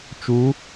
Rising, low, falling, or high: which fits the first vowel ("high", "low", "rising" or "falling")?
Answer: rising